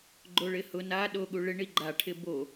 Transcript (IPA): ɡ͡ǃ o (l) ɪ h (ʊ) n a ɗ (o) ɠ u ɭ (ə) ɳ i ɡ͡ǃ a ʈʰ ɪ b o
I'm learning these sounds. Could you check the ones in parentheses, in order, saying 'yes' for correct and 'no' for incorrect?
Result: no, yes, yes, no

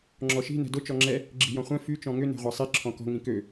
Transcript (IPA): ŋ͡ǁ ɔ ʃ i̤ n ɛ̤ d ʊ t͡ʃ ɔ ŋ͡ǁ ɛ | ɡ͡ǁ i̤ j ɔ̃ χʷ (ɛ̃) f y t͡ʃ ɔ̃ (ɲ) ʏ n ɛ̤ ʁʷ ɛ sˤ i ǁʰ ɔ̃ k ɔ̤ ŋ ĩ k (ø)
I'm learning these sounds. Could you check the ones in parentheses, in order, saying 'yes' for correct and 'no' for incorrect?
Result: yes, no, yes

